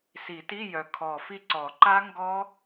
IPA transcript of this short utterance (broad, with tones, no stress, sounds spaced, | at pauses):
s i˨˩˦ t i˧˥˧ j œ˨˩ kʰ ɔ˨˩ f i˦˨ ǀ ɔ˨˩˦ ǃ a˦˥ ŋ ɡ ɔ˦˥